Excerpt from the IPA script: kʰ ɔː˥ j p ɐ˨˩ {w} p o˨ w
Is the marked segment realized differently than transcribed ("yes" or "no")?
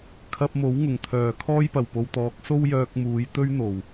no